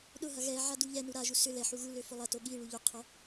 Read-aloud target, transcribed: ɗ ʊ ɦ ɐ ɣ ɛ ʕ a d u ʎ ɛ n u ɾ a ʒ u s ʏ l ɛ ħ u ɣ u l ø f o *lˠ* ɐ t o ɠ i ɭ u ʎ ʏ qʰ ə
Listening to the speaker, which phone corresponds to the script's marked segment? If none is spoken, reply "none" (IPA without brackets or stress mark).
lˠ